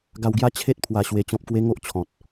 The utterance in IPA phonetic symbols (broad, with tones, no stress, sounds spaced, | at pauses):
ɡ a˧ w ɡ j a˦ t͡ɕʰ e˦ t̚ pʰ w a˧ ɕ w e˧ t͡ɕ ɔ̃˦ p̚ k w e˦ ŋ o˦ ʔ t͡ɕʰ ɔ̃˨ t̚